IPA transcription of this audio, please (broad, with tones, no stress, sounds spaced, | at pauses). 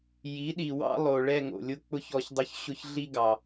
j i˩˥ ɗ i˨ w ɑ̰˥ lˠ o˨ ɭ ɛ˦˨ ŋ o̰˨ lʲ ʊ˥ k͡p ʊ˥ ç ɔ˦˨ ç dˤ ʊ˥ ç ɕ ʊ˥ ç ɮ i˥ ɡ ɑ˨